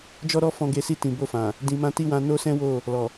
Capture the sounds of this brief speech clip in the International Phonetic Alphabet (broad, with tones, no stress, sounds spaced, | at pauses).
d͡ʒ ɔ˦ ɾ ɔ˦ f ɔ̃˧ ɡ e˧ s i˧ t ĩ˨ b o˧ f ã˨ | d ĩ˨ m ã˧ t i˦ w ã˧ n o˦ s ɛ̃˦ w o˦˨ | l ɔ˨